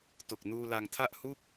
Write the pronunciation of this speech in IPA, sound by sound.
t o˨˩ k̚ n uː˧ l a˧ ŋ tʰ a˥˩ ʔ h u˥˩ k̚

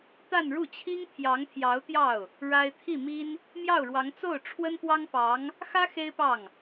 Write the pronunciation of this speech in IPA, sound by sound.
t̪ a˥˧ n ɻ u˥˩ t͡ɕʰ i˥ ŋ t̪ʰ j ɑ˧˥ ŋ t̪ʰ j ɑ˧˥ ʊ̯ t̪ j ɑ˥˩ ʊ̯ | ɻ a˥ ɪ̯ t̪ʰ i˥˩ m i˥ n | m j ɑ˥˩ ʊ̯ ɻ w ɑ˧˥ ŋ t͡s o˥˩ ʊ̯ ʈ͡ʂʰ w ə˥ n p w ɑ˥ ŋ p ɑ˧˥ ŋ | x ä˥ x e˥ ɪ̯ p ɑ˥˩ ŋ

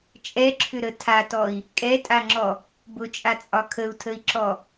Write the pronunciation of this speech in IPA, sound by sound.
t͡ʃʼ ɛ ǁʰ ʏ ɾ ə tʰ a t ɔ i̯ | kʼ ɛ tʼ a ŋ͡ǁ ɔ | b ʊ t͡ʃʼ a t͡sʼ ɒ kʰ ə u̯ tʰ ə i̯ ǁ ɔ

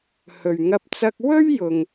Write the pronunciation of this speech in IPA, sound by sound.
h ɵ˨ ɥ ŋ ɐ˧ p̚ t͡s ɐ˧ k̚ w ɵ˥ ɥ j ʊ˨ ŋ

